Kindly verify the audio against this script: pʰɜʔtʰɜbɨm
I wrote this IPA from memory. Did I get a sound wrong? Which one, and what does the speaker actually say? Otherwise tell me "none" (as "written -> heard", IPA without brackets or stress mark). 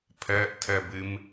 none